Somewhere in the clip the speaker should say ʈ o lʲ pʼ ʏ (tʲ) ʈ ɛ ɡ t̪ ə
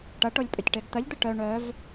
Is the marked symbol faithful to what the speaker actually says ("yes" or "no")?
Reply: yes